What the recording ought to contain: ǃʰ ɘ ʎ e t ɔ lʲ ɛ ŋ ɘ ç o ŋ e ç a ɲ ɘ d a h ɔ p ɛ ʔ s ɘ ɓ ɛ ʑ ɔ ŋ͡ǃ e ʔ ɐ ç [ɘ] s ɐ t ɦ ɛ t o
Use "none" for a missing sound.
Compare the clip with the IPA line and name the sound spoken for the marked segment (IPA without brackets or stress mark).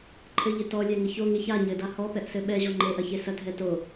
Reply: e